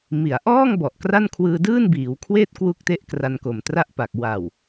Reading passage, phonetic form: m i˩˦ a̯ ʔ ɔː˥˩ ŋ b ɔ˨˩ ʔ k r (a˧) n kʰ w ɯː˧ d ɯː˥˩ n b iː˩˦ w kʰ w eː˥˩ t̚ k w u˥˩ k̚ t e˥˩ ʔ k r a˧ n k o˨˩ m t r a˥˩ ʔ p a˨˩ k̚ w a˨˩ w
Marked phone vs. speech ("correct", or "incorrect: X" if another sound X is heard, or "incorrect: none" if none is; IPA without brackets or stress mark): incorrect: a˥˩